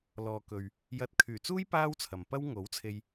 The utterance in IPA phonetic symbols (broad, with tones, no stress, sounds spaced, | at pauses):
l ɔː˨ k ɵ˨ ɥ | j ɐ˨˥ t̚ kʰ yː˨˩ t͡s uː˥ j p aː˥ w t͡sʰ ɐ˨ m p ɐ˥ w ŋ o˨˥ w t͡sʰ e˧ j